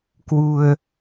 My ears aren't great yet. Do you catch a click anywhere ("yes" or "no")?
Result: no